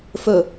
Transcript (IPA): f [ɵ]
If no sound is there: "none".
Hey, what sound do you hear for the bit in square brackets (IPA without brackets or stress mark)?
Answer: ɵ